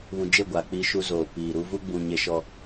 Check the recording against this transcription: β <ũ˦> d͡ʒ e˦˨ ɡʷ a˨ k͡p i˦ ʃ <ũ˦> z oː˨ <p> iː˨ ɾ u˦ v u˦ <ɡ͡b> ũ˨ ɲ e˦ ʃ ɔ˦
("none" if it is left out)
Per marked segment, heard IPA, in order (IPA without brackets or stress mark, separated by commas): ũ˨, u˦, p, ɡ͡b